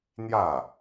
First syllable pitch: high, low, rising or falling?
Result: falling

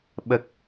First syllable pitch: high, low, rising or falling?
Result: low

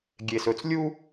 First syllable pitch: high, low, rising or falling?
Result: low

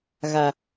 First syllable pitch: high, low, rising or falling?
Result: low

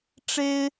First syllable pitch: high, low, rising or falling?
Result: high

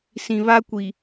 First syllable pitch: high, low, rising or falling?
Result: low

